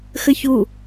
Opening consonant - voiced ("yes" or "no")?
no